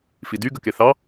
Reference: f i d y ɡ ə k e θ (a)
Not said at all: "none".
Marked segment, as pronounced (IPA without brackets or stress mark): ɑ